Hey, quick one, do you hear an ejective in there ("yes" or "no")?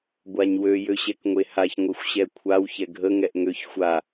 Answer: no